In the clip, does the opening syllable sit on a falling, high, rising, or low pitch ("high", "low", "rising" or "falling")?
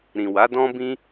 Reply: low